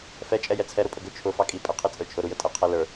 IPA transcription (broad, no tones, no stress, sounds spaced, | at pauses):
f ɛ t͡ʃʼ ɛ j ɛ t͡sʰ ɛ ɾ ʊ pʼ ə ɡ ʊ t͡ʃʰ ʊ f ɑ kʼ i pʼ ɛ qʰ i t͡sʼ ə˞ t͡ʃʰ ʊ ɾ u j ə tʼ ɛ qʰ ɛ l ə˞